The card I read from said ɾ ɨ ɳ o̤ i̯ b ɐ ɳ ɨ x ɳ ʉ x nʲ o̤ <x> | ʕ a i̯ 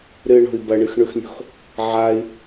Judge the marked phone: correct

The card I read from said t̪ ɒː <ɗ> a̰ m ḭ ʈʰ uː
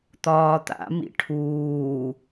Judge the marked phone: incorrect: t̪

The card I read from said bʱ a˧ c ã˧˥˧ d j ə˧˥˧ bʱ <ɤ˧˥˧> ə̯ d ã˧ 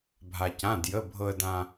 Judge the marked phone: incorrect: ɤ˧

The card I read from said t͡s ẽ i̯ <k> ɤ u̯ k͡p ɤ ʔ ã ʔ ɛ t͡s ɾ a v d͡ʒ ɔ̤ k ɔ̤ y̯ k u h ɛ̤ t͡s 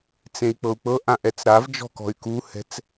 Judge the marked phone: incorrect: k͡p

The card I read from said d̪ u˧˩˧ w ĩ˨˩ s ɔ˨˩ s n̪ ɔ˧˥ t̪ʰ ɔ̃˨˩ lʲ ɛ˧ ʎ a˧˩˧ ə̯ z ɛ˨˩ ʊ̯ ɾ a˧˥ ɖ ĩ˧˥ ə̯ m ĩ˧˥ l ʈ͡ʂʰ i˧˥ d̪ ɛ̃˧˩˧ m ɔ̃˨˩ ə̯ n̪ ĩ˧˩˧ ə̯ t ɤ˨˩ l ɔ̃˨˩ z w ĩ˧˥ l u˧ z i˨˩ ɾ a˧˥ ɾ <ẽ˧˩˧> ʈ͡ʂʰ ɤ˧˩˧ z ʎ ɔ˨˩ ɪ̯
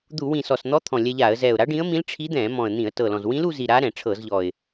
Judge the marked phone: incorrect: ɛ̃˧˩˧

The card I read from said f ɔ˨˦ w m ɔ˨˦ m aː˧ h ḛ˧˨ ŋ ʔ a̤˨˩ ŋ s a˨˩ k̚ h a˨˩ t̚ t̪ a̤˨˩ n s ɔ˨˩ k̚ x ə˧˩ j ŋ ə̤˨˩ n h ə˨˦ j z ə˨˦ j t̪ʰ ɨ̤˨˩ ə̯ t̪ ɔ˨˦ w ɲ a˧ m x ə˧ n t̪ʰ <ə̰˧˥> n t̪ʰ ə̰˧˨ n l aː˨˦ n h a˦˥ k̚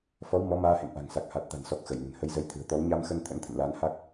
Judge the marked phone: correct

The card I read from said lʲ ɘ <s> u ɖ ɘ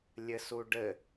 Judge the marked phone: correct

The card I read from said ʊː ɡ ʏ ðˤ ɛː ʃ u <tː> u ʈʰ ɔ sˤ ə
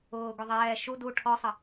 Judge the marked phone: incorrect: d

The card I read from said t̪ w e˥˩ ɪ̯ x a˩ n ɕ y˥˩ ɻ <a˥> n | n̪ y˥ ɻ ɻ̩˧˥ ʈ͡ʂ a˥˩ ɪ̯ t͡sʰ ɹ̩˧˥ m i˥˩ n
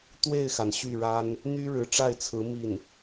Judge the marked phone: correct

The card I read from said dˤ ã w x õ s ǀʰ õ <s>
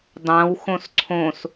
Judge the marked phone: correct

